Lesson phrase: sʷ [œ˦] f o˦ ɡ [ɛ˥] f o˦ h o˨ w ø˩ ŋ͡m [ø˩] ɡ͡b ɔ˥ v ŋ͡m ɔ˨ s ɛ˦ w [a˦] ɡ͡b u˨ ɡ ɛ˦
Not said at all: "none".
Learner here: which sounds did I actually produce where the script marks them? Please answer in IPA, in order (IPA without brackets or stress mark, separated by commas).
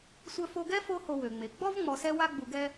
œ˦, ɛ˥, e˩, a˦